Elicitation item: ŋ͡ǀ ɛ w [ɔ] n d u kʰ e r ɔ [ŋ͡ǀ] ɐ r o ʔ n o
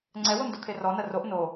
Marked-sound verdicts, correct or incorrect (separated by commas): incorrect, incorrect